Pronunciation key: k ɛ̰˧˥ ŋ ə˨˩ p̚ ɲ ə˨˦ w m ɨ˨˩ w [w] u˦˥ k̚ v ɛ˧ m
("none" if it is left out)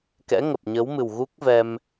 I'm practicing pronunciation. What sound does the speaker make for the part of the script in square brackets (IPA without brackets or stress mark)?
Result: ɣ